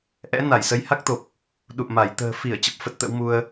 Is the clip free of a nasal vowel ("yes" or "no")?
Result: yes